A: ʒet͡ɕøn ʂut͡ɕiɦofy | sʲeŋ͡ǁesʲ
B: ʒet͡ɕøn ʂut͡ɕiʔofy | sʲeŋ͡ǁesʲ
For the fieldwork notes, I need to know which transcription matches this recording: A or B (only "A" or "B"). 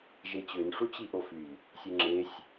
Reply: B